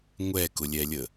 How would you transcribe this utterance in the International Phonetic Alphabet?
ŋʷ ɛ k ʊ lʲ ɛ lʲ ə

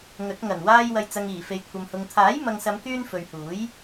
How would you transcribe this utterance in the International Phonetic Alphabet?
ŋ ɵ˨˥ t̚ ŋ ɐ˨˩ n w aː˧ j w ɐ˨ j t͡s ɐ˨ ŋ iː˨˩ f e˨ j kʷʰ ɐ˨ m h ʊ˨ ŋ t̪ʰ aː˨˥ j m ɐ˨ ŋ s ɐ˨˧ m k yː˧ n f ɵ˨ ɥ h uː˨˥ j

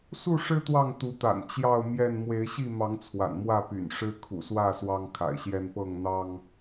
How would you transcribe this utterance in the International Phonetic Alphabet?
s u˥˨ ʂ ɻ̩˦ t̪ w ɑ˥˨ ŋ t̪ u˨˦ t̪ a̰˨˩ n t͡ɕ j ɑ˥˨ ʊ̯ m j ɛ˥˨ n m w e˨˦ ɪ̯ ɕ i˥˨ m ɑ˨˦ ŋ t͡sʰ w a̰˨˩ n m w ä˥˨ p y̰˨˩ n ʂ ɻ̩˦ kʰ ṵ˨˩ s w ä˥˨ s w ɑ˦ ŋ kʰ a̰˨˩ ɪ̯ ɕ j ɛ˦ n p ɤ˥˨ ŋ n̪ ɑ˦ ŋ

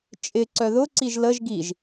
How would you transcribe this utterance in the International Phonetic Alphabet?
t͡ʃʼ ɪ ǀ œ ð ʊ ǀ i ʒ l ə ʒ ɡ i ʒ

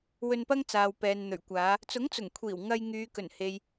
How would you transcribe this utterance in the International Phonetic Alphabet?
w ɵ˧ n p ɐ˥ ŋ t͡s aː˨ w p ɛː˨ n n̪ ɵ˨˩ ɥ kʷ aː˨˧ | t͡s ʊ˨˥ ŋ t͡s ʊ˨˩ ŋ kʷʰ iː˨˩ w ŋ ɐ˧ j ŋ yː˨˧ k ɵ˨˩ n h e˨ j

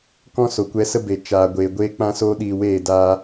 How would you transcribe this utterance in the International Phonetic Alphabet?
k ɔ̃˦ s o˨ kʷ ɛ˧ s ə˦ b e˨ t͡ʃ aː˨ ɡʷ eː˨ ɡʷ eː˦ k͡p ã˦ s oː˦ ɗ iː˧ w eː˦˨ d aː˧

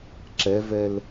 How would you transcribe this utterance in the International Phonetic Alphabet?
ǁ ɛ v ɛ l

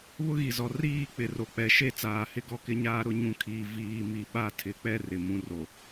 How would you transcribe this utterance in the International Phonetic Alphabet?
β ʊ˦ ɣ i˨ z ɔ˨ r iː˦˨ k͡p ɪ˨ r o˨ k͡p ɛ˨˦ ʃ e˦˨ t͡s aː˨ h ɪ˦ ɡ ɔ˦ k ɪ˦ ɲ aː˦ ɾ ʊ˦ ɲ ũ˨ kʰ iː˨ v iː˨ m i˨ ɓ a˦˨ tʰ ɪ˨˦ k͡p ɛ˦ r ɪ˨ m ũ˦ r o˨

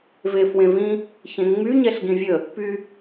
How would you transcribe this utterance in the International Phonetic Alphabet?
v e f w ẽ v ĩ | ç ẽ ŋ͡m y ɲ ɛ ɬ ɡ ĩ vʲ ə | p y

